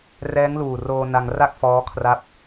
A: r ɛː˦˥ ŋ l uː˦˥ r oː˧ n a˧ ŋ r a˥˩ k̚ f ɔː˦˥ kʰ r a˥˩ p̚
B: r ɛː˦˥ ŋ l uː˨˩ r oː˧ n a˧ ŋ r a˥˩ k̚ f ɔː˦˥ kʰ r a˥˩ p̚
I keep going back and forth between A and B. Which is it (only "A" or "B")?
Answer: B